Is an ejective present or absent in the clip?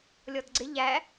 absent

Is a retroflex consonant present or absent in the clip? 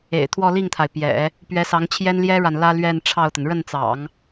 present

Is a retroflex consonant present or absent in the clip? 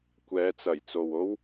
absent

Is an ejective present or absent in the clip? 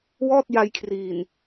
absent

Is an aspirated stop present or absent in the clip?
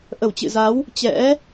absent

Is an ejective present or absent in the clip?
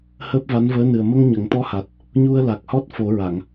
absent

